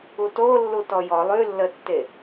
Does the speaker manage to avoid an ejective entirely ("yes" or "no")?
yes